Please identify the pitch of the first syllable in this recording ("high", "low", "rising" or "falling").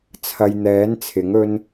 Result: low